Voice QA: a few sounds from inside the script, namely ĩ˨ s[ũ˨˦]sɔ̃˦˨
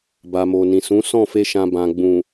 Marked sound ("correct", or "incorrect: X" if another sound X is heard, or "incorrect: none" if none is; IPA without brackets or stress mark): correct